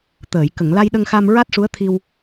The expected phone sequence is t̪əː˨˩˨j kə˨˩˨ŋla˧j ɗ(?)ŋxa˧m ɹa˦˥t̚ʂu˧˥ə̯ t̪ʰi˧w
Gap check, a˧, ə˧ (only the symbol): ə˧